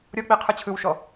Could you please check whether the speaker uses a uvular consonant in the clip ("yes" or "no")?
yes